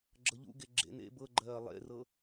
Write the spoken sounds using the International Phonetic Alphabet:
ɡ͡ǁ ɤ ʎ ṵ ɡ e ɡ͡ǁ ḛ n ḛ b ɤ ɡ͡ǃ ɜː lˠ ḛ r ɤ

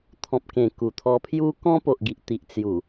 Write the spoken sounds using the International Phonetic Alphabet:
t̪ʰ ɔ̃˨ p̚ k ẽ˨˩ k u˨˩ t̪ʰ ɔ˧ pʰ j u˦ k ɔ̃˦ p o˨ ʔ ɡ i˨ ʔ t̪ i˨ ʔ t͡s j u˨˩

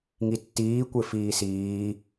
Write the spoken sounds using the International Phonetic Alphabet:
ŋ i tː iː kʷ ɪ f iː s iː

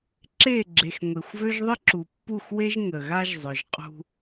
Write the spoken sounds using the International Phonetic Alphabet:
ǁ e˦˨ ɡ͡ǁ e˨ x ŋʷ e˨ xʷ v ø˦ ʒ ðˤ ə˦ ǁ u˨ pː u˦˨ x w e˦ ʒ ŋ ə˨ ɣ a˦ ʒ zˤ œ˨ ʒ qʼ ṳ˦

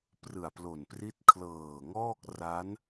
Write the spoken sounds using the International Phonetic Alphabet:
p r ɯ˨˩ a̯ p l o˨˩ n p r i˦˥ t̚ kʰ l ɤː˨˩ ŋ ɔː˥˩ k̚ r a˦˥ n

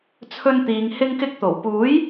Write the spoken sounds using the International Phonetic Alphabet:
t͡sʰ ɵ˧ n t̪ iː˨ ŋ h ɪ˧ ŋ k ɪ˧ k̚ t̪ o˨˩ w p uː˨˥ j

